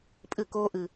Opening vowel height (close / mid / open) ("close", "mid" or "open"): close